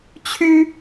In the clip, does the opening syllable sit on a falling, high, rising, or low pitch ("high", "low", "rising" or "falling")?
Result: high